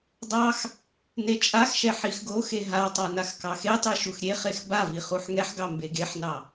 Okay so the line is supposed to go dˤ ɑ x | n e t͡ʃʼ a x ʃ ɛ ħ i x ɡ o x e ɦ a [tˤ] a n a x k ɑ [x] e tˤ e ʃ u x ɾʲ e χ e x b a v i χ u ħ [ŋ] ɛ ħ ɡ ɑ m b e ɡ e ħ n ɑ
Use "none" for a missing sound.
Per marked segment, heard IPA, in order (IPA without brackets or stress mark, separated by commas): tˤ, x, ŋ